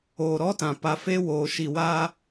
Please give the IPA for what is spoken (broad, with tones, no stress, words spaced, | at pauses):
oː˨ɾɔ˦tã˨ pa˨fe˦woː˨ ʃi˨waː˦